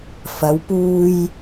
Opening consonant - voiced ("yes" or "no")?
no